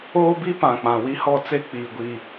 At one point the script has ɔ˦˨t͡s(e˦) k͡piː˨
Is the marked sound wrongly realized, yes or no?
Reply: no